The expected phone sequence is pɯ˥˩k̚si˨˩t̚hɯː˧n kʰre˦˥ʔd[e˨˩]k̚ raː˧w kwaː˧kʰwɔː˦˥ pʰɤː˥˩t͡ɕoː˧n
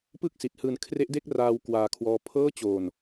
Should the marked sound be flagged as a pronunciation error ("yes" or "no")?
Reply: yes